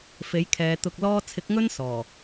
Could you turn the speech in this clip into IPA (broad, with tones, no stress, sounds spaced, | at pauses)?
f e˨˥ j kʰ ɛː˨˧ t̪ ʊ˧ k̚ l ɔː˥ t͡sʰ ɪ˨˥ k̚ ŋ ɵ˥ n s ɔː˨˩